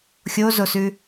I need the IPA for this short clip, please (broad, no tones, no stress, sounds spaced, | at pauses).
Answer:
xʲ o z o s ʉ